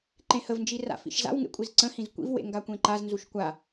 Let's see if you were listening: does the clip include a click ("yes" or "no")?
yes